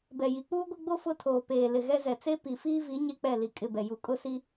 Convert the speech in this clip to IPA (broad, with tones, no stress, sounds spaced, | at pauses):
b ɛ˨ j i˨ k͡p uː˦ ɡʷ ɪ˦ ɡ͡b o˦ f ʊ˦ tʰ oː˨ p eː˨ l ɪ˨ ɣ ɛ˦ z ɛ˨ t͡s e˦ p i˨ f iː˦ v i˨˦ ɲ e˦ k͡p ɛ˦˨ l i˨ kʼ ɪ˦˨ b ɛ˨ j u˨ kʼ ʊ˦ s i˦